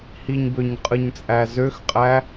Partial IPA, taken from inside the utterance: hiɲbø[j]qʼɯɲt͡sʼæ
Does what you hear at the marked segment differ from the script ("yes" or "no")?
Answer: yes